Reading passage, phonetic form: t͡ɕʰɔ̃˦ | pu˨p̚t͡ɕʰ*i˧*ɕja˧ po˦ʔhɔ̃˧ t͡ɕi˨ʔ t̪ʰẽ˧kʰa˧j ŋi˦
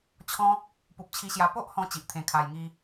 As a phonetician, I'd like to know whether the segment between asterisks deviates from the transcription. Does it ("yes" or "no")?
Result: no